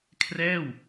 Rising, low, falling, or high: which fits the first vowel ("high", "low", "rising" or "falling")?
falling